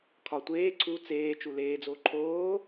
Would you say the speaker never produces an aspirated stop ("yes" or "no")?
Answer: no